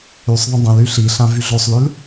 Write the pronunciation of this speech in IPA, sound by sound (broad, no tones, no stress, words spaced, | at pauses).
ysˤðˤə̃ dˤə̃l yɬiɬã vyɮosˤlʉl